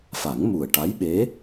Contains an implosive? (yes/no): yes